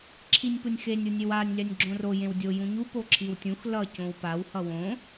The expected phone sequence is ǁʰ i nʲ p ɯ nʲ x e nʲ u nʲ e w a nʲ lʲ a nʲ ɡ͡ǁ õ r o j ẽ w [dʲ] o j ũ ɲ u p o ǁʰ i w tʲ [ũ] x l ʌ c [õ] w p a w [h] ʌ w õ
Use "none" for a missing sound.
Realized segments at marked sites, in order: dʲ, ũ, õ, h

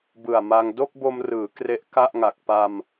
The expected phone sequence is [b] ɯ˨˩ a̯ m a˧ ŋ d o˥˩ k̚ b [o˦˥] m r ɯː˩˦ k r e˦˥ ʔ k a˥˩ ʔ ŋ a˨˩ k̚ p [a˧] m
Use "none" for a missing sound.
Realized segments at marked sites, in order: b, o˧, a˧

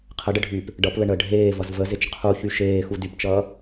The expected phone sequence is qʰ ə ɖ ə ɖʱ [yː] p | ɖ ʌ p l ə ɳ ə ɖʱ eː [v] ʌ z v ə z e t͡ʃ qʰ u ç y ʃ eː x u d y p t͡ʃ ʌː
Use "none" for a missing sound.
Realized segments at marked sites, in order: yː, v

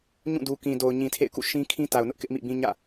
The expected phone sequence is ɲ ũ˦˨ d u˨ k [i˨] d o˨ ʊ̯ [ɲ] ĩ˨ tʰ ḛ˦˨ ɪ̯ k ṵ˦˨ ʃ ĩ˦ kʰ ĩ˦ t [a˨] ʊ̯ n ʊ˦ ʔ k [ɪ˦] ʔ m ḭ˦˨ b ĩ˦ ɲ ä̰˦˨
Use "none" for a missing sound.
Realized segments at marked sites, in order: ĩ˨, ɲ, a˨, ɪ˦

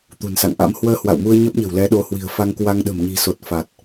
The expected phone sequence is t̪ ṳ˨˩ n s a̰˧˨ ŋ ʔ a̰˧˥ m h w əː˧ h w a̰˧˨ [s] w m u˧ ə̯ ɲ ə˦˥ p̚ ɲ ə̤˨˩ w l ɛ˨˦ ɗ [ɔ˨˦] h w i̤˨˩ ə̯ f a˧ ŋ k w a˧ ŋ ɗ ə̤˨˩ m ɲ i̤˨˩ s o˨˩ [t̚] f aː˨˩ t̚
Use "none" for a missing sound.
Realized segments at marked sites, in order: none, o˨˦, t̚

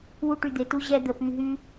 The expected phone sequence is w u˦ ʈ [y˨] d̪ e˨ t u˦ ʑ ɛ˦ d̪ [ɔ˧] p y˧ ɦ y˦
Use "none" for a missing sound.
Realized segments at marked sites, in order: y˧, ə˧

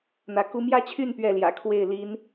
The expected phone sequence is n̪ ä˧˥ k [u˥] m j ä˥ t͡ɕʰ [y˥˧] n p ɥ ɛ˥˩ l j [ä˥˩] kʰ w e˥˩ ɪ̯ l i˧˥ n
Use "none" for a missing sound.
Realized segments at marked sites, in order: u˥, y˥˧, ä̰˨˩

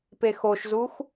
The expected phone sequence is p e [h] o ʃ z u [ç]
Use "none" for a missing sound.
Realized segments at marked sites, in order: x, x

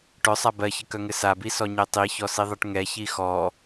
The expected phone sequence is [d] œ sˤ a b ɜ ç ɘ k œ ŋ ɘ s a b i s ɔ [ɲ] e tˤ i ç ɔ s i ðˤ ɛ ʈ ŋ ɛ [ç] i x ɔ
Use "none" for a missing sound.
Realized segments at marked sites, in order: ʈ, ɲ, ç

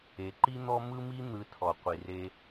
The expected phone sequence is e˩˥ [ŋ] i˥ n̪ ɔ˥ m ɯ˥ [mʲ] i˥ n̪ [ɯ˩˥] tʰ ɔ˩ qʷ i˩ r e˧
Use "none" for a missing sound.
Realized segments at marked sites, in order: ǃ, m, ɯ˩˥

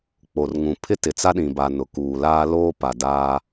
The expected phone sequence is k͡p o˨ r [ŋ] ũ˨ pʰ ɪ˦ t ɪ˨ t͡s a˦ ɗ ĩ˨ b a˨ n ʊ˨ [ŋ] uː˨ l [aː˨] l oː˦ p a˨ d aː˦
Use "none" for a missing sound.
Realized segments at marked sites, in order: ŋ, k, aː˦

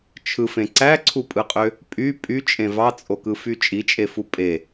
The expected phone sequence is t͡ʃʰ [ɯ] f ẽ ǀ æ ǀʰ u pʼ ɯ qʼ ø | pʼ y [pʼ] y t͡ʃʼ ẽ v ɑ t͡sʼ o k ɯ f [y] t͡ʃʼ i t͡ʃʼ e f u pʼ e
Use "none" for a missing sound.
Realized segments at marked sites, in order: ɯ, pʼ, y

